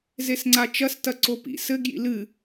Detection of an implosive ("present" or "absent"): absent